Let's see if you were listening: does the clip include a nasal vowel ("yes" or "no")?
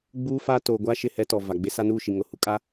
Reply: no